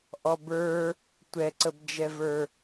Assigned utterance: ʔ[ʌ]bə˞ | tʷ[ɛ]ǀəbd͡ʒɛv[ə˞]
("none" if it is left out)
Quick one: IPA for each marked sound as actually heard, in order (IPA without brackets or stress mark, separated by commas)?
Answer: ɔ, ɛ, ə˞